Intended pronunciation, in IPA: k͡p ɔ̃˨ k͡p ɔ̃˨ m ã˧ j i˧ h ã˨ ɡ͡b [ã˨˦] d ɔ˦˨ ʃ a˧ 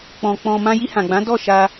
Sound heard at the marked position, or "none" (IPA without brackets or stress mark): ã˨˦